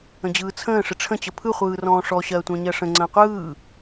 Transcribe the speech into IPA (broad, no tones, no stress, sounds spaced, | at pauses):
ə̃ d͡ʑ ɯː t͡sʰ ə̃ː ʂ ɪ ʈ͡ʂʰ ə̃ t͡ɕ ə pʰ ɯ χʷ ɯː r ɔ̃ː ʂ ɔ ɕ ɜː tʷ ə̃ː ɲ ɜ ʂ ə̃ ŋ͡ǀ ə̃ː qʷ ɯː